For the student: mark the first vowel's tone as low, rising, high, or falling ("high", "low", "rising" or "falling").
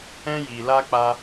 high